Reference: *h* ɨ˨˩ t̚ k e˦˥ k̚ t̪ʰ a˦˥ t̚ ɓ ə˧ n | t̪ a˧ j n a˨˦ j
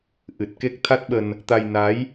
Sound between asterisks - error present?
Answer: yes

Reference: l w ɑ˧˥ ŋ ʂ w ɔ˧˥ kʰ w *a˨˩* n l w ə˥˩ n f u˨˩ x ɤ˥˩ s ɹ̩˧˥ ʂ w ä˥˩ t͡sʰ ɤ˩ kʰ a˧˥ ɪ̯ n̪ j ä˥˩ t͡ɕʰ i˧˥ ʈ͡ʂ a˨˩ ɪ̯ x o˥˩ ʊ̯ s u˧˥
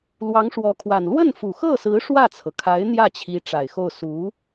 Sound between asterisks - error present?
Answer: no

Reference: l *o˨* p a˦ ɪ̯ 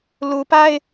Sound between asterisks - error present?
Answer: yes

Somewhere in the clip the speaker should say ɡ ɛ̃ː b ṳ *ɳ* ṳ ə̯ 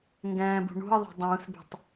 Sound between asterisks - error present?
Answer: no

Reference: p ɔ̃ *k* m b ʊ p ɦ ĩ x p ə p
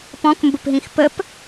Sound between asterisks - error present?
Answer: no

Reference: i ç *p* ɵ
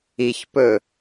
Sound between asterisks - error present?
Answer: no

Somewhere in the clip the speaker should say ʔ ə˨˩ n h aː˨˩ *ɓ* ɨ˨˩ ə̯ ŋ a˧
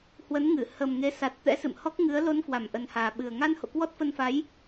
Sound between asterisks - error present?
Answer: no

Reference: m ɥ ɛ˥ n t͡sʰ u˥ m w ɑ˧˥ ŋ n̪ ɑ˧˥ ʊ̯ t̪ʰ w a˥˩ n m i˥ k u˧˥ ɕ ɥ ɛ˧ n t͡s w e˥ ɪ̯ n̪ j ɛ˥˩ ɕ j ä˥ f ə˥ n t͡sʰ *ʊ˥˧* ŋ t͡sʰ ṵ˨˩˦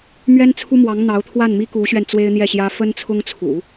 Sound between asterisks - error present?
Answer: yes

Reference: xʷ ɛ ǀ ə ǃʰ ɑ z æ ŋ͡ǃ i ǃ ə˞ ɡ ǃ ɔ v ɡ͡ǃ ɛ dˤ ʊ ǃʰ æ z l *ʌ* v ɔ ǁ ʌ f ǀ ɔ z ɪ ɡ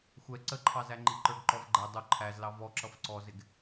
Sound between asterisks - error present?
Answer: yes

